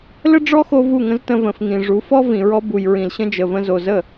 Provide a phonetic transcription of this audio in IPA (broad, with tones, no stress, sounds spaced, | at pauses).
l ə˦ ɖ͡ʐ ɔ˦ x o˧ v u˦˨ ŋ ə̃˦ z t ə̃˧ v ə̃˨ f ŋ ĩ˨ ʐ u˨˦ f ɔ˦ v ĩ˨ ɹ ɔ˧ b u˨ j ɹ ĩ˨ l ɕ ə̃˧ d͡ʒ ə˨ v ə̃˧ z o˨ z ə˦˨